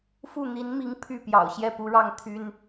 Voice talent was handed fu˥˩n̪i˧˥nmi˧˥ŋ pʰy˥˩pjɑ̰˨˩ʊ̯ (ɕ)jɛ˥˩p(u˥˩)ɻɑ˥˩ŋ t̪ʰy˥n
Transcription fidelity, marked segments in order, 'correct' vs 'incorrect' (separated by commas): correct, incorrect